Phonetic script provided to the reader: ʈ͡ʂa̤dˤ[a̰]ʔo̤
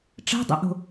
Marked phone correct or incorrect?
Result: correct